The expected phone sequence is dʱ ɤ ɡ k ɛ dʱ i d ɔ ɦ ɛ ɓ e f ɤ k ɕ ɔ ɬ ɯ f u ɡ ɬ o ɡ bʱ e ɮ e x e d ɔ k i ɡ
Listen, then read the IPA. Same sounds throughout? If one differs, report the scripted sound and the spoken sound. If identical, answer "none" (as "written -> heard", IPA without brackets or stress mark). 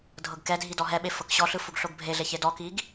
x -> ç